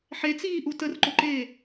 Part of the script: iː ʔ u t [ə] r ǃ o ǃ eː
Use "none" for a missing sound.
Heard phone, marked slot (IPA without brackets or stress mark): ə